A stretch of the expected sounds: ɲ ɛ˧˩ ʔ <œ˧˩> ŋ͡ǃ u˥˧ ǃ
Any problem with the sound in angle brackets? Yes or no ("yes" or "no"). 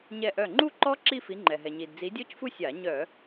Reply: no